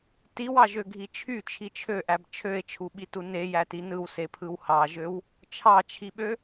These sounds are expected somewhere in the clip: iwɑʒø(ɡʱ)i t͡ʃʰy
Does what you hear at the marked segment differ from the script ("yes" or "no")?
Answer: no